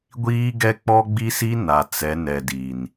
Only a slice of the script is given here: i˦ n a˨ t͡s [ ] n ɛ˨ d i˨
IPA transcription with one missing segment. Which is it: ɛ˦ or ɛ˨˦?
ɛ˨˦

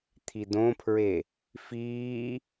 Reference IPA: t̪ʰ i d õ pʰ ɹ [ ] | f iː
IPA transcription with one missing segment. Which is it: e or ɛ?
e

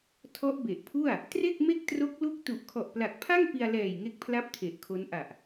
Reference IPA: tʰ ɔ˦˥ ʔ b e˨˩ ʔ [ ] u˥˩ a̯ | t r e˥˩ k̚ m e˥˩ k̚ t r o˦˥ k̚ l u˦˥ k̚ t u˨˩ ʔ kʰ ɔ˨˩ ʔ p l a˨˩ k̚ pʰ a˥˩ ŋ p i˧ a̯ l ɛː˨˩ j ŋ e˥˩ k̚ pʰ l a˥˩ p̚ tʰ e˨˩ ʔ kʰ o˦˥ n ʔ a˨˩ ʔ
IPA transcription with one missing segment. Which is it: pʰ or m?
pʰ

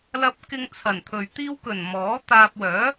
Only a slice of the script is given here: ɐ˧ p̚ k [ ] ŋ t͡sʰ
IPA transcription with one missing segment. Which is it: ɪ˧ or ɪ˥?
ɪ˧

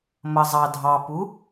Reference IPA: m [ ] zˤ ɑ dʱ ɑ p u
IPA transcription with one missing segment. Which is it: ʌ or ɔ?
ʌ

